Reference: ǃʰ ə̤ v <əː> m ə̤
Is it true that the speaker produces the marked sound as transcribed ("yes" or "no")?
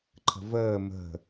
yes